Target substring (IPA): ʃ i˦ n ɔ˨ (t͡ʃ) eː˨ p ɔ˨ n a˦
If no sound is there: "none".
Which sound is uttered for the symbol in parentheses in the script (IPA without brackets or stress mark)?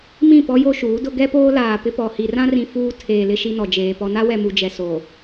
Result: d͡ʒ